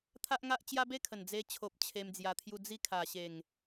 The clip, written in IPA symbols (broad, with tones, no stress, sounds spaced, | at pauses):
t̪ʰ a˦ ʔ ŋ a˦ ʔ t͡ɕ j a˦ b e˦ kʰ ə˨˩ n d͡z e˧ t͡ɕʰ o˨ p̚ t͡ɕʰ e˧ m d͡z j a˧ t̪ʰ j u˧ d͡z i˦ kʰ a˨˩ ɕ e˨˩ ŋ